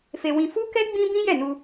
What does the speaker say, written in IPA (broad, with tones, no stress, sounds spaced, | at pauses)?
f e˧ w ĩ˧ f u˦ k ɛ˦ ɡ͡b ĩ˦ b ĩ˦ j ɛ˦˨ n u˧